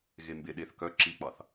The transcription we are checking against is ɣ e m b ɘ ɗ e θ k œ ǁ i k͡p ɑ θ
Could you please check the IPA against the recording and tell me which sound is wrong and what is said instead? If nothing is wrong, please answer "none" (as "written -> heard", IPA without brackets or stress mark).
ɘ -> e